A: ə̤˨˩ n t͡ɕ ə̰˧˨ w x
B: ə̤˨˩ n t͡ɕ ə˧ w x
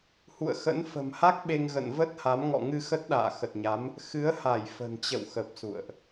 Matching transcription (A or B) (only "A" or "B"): A